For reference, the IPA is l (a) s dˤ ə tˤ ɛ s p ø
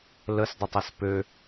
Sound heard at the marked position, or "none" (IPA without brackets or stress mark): ə